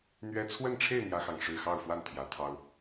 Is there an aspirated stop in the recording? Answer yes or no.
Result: yes